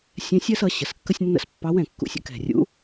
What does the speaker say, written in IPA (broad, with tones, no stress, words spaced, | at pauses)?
sʲɛ̃˧˥sʲɜ˥sʌ˩˥ ɕə˩˥skːə˥sʲnːə̰˥s pːɑ˧˥wɛ̃˨˩ kːṵ˧sʲə̰˧˥ kɛ̤˨˩rʲṵ˧˥